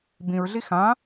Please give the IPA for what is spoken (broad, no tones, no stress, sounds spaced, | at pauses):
b ĩ ɹ ɮ i x ã